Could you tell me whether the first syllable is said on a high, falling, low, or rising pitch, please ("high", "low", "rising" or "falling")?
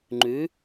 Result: rising